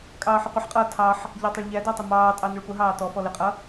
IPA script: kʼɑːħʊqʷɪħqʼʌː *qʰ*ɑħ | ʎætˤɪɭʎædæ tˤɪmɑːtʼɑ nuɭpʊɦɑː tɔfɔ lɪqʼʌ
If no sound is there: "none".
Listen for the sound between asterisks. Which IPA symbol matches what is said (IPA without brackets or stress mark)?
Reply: tʰ